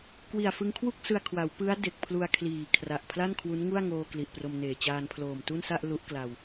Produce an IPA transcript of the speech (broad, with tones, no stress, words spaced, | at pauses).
kwi˨˩a̯fɯ˧ŋkʰwu˥˩k̚sɯ˧a̯ kʰwa˩˦wpɯ˦˥a̯ de˨˩k̚pʰlu˧a̯kʰliː˨˩ kʰra˨˩ʔpʰla˥˩nkʰwu˦˥n ŋu˥˩a̯ŋoː˧ kli˨˩ʔpro˧mneː˨˩ t͡ɕaː˧npʰloː˨˩mtu˥˩nsa˥˩ʔ lu˦˥ʔkla˧w